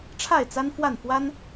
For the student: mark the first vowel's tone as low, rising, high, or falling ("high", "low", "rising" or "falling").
falling